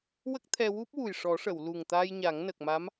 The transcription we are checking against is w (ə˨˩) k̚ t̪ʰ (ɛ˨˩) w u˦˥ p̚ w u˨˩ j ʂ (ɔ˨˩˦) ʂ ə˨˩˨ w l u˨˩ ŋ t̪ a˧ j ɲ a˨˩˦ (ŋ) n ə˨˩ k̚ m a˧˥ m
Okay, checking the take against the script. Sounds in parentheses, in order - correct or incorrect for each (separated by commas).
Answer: incorrect, incorrect, correct, correct